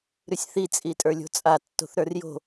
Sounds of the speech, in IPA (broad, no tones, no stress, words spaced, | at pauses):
ɾʉsʲθi t͡sʼitʼə˞lʲo̤t͡sʼa tːo̤θɾə˞rjo̤